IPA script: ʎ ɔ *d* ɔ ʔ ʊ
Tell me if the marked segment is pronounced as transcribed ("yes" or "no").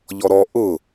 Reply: no